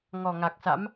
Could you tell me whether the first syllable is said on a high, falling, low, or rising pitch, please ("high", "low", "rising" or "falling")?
low